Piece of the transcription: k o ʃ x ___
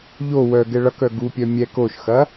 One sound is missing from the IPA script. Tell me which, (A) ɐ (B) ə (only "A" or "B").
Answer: A